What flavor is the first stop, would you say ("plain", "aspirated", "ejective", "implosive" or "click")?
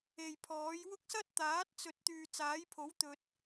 aspirated